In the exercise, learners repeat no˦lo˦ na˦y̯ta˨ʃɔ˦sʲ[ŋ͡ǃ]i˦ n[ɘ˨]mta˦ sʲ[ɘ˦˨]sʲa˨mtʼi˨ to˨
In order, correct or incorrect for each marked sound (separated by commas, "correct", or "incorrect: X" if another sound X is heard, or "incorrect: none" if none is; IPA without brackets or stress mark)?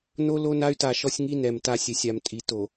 incorrect: ŋ, incorrect: ɛ˨, incorrect: ɘ˨˦